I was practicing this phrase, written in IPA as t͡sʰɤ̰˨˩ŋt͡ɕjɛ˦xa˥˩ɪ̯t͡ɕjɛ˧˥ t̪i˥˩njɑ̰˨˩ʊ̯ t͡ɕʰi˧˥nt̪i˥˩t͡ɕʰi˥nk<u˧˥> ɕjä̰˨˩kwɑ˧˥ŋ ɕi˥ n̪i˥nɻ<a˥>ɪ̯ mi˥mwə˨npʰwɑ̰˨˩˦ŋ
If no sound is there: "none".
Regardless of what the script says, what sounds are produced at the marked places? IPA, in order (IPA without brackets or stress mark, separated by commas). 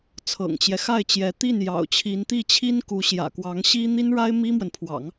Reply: u˧˥, a˥